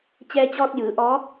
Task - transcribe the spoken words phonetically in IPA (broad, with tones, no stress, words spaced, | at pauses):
t͡ɕɛː˧t͡ɕɔː˧t̚jɯː˩˧ ʔɔː˧˥k̚